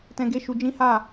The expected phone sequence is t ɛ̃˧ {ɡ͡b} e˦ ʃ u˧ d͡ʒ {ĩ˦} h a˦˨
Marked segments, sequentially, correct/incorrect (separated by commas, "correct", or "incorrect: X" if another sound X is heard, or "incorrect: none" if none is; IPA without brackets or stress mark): incorrect: ɡ, correct